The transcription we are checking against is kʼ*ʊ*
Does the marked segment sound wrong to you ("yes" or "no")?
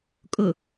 no